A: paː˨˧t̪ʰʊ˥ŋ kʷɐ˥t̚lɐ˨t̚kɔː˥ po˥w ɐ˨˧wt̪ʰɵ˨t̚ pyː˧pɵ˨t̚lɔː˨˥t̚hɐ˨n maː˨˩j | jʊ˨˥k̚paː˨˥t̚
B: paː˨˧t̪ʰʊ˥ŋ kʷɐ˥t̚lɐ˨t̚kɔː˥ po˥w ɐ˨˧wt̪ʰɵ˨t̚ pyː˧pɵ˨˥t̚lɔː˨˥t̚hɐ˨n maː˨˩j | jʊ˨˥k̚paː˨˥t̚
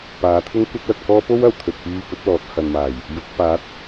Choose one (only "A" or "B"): B